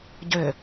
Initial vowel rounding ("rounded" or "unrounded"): rounded